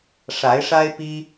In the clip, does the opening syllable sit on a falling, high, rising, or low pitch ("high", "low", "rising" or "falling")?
rising